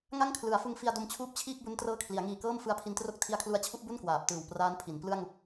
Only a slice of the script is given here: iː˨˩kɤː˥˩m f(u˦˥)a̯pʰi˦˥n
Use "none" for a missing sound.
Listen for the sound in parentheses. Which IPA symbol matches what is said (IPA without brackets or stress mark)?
ɯ˦˥